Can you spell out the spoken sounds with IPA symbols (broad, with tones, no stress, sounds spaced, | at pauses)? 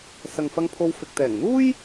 s ɐ˨ ŋ f ɐ˧ ŋ pʰ o˧ w f ɪ˨ k̚ t̪ ɛː˨˩ ŋ n̪ uː˥ j